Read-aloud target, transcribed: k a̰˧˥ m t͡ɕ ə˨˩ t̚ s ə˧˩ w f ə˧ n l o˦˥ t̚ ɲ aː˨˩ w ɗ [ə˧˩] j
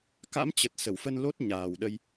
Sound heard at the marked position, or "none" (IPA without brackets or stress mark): ə˧